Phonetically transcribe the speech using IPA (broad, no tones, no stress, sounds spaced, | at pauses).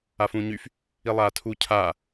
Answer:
a f ũː ɲ y f | i lˠ aː tʰ u cʰ aː